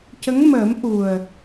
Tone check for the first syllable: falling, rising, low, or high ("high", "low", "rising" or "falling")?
rising